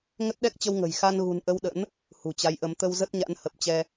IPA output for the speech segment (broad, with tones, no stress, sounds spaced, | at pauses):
ŋ ə˦˥ t̚ ɗ ɛ˦˥ k̚ t͡ɕ ə˧ w ŋ ə̤˨˩ j x a˧ n ɣ ṳ˨˩ n ʔ ə˧ w ɗ ə̰˧˥ n | h ṳ˨˩ t͡ɕ a˨˦ j ʔ ə˨˦ m t̪ ə˧ w z ə˦˥ t̚ ɲ a̰˧˥ n h ə˨˩ p̚ t͡ɕ ɛ˧